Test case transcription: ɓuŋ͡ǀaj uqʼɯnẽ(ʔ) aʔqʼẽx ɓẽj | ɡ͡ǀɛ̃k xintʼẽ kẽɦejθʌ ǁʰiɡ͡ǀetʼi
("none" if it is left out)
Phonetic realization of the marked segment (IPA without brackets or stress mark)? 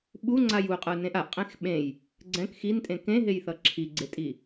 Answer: ʔ